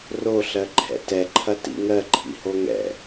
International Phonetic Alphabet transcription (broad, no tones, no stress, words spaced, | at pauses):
ro ɬɜǃʰɛ̰tɛ ǃʰɐtḭŋɜ ǃʰḭhoŋɛ̰